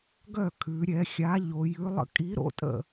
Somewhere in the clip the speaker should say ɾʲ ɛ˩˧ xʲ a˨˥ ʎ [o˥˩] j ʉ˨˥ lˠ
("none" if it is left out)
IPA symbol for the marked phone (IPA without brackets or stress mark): o˩˧